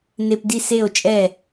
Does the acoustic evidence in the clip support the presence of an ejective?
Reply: yes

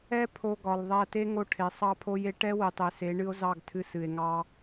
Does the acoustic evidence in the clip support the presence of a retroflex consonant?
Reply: yes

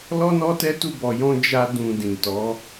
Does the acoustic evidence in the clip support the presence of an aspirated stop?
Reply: no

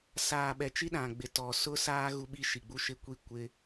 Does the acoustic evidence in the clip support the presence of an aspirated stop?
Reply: no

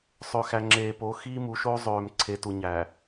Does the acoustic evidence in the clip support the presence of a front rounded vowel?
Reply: yes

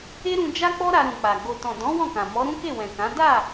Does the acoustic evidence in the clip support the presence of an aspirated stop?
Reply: no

